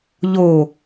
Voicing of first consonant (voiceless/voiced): voiced